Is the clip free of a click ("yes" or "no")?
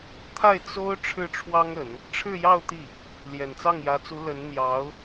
yes